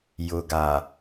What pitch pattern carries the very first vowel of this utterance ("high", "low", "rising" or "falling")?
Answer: low